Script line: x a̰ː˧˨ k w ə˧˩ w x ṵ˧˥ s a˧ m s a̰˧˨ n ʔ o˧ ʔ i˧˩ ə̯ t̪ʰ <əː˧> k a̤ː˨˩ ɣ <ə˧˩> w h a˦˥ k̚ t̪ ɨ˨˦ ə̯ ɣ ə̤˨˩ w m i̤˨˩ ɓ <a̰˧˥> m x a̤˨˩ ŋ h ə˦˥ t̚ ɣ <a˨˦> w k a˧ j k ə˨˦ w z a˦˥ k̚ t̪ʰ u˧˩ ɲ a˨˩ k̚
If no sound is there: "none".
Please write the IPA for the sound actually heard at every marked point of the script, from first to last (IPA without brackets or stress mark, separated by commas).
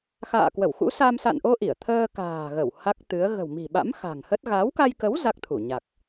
əː˧, ə˧˩, a̰˧˥, a˨˦